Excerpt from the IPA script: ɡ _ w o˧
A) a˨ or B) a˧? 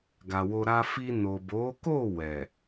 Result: A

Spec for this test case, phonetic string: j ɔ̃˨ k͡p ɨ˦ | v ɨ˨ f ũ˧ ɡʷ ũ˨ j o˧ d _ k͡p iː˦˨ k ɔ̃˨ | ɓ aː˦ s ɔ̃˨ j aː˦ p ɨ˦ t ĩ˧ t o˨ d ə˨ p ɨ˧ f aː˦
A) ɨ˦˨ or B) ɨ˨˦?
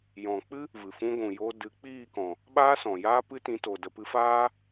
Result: B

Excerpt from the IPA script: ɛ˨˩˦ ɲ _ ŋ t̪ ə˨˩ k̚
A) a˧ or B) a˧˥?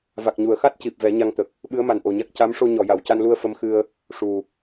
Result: A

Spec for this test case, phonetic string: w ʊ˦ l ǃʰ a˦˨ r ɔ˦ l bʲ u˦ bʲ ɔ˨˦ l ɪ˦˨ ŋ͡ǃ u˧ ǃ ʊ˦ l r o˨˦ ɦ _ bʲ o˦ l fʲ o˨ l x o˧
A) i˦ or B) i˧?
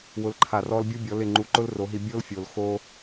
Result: B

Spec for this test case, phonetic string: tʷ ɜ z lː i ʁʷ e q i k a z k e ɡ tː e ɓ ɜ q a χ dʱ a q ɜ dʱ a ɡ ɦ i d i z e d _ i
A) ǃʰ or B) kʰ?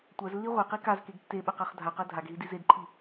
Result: A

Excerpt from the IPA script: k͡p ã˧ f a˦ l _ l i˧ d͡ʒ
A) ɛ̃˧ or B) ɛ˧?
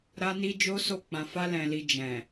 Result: A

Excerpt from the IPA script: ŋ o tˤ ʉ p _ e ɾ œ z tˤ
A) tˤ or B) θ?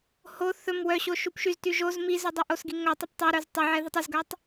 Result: A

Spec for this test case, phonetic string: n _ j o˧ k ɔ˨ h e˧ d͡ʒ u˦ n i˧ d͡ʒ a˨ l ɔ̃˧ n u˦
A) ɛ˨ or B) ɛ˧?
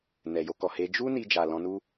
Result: A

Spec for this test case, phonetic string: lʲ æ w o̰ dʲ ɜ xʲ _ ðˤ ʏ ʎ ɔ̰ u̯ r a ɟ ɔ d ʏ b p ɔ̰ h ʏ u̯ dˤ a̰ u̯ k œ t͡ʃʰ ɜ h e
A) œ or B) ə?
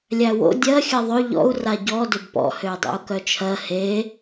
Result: B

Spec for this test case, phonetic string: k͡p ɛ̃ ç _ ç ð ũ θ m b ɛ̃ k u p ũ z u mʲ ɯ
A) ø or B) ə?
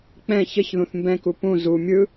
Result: B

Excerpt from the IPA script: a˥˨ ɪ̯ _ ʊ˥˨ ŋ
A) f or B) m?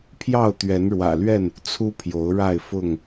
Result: A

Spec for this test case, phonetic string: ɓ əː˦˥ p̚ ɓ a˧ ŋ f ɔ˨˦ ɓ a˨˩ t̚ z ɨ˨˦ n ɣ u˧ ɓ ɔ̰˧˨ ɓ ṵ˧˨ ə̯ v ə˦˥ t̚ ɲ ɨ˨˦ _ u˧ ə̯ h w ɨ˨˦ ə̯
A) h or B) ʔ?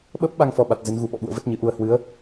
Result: B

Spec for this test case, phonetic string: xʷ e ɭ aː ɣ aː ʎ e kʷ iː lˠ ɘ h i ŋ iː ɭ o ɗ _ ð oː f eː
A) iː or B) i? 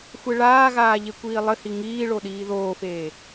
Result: A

